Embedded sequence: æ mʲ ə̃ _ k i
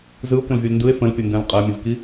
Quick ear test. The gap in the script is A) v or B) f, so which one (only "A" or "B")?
A